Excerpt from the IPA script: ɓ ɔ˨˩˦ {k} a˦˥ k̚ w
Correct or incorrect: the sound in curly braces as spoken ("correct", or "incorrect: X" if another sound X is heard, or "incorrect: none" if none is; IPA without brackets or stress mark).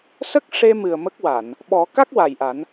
correct